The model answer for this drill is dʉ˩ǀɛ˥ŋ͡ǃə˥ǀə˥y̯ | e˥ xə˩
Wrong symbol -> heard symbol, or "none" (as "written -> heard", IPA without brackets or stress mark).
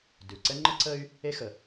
none